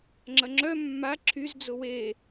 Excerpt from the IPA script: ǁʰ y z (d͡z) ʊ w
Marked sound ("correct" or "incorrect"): correct